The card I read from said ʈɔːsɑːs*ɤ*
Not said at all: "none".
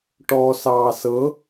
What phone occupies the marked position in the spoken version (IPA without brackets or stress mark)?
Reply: ɤ